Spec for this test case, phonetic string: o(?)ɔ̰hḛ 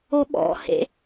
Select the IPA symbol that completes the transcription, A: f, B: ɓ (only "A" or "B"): B